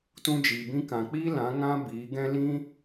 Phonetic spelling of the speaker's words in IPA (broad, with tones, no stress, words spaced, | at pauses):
tũ˦d͡ʒiː˧bĩ˦kã˧ k͡piː˦lã˨˦ ŋã˦biː˨˦ɡɛ̃˦ lĩ˦